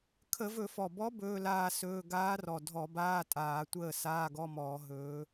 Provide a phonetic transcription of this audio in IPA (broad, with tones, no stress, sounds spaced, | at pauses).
kʰ ə˧˩˧ v ɵ˧˩˧ f ɔ˨˩ b ɔ˧˥ b ɵː˧˥˧ l aː˥˨ s ɵː˧˥˧ ɡ aː˧˥ r ɔ˨˩ dʱ ɔ˧˩˧ b aː˧˥˧ tʼ aː˧˩˧ tʷ əː˥˨ s aː˧˥˧ ɡ ɔ˧˥˧ m ɔː˧˩˧ ɦ ɵː˧˥